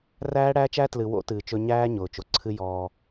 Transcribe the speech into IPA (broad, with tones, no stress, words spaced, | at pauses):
ræː˦ɽæː˦t͡ʃæ˦ tlɨ˨wo̰˦ tɨː˨t͡ʃɵ˦ ɲæː˦ ɲʊː˨t͡ʃo˨ ǀʰɨ˦ jɔː˦